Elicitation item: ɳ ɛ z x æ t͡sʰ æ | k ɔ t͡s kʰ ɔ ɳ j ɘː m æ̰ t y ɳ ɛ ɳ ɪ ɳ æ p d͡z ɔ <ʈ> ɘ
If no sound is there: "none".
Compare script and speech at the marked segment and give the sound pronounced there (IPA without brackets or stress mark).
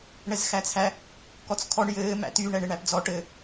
ʈ